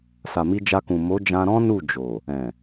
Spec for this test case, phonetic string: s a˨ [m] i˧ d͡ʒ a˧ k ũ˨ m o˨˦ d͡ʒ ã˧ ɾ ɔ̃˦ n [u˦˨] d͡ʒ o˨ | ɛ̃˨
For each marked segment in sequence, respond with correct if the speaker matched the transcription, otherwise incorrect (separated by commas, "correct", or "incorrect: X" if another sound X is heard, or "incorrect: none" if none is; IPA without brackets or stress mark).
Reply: correct, correct